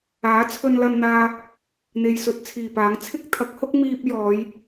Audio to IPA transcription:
aː˨˥ t͡sʰ ɵ˧ n l ɐ˧ n n̪ aː˧ | n̪ e˧ j s ɵ˧ t̚ t͡sʰ iː˨˩ p aː˨˥ ŋ t͡sʰ ɪ˥ k̚ t̪ʰ ɐ˨˥ k̚ h ʊ˥ k̚ m iː˥ p̚ j ɔː˨˧ j

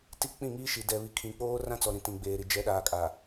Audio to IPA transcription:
t i˦˨ k͡p ĩ˦˨ ŋ iː˦ ʃ i˨ d ɛ˨ β i˨ kʰ ĩ˨ k͡p oː˦ r ã˦ t͡s ɔ˨ ɾ ĩ˨ t ĩ˨ ɡ͡b eː˨ ɾ i˨ d͡ʒ ɛ˨˦ ɗ aː˨ kʼ a˨

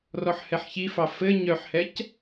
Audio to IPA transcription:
r ɔ ħ h ɛ ħ ç i f ɑ f ɘ ɲ œ ħ h ɛ c

